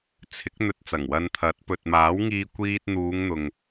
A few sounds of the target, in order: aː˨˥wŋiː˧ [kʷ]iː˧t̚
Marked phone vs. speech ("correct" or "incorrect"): correct